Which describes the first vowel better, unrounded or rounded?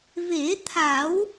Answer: unrounded